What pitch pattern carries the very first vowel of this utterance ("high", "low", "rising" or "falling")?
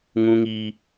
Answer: low